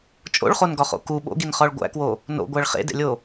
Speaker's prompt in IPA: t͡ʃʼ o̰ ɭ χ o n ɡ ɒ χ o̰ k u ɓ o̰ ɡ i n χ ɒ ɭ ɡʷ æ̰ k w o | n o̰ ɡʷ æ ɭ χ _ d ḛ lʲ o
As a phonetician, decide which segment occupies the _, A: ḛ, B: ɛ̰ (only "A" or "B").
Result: A